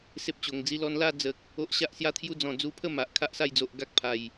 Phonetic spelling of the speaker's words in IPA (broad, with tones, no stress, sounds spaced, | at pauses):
s e˦ p̚ t͡ɕ o˨˩ ŋ d͡z i˦ l ɔ˧ n l a˥˧ d͡z ə˨ k̚ | o˦ ʔ ɕ a˦ ʔ s j a˦ t̪ʰ j u˦ d͡z ɔ̃˨˩ d͡z u˧ pʰ ə˥˧ m a˨ ʔ kʰ a˦ ʔ s a˥˧ j d͡z o˨ ʔ ɡ a˦ k̚ pʰ a˨˩ j